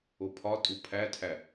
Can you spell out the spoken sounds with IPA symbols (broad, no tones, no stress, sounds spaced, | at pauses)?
o pʰ ɒ tʼ u pʰ æ tʰ æ